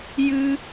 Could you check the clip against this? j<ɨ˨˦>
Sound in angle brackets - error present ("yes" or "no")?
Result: yes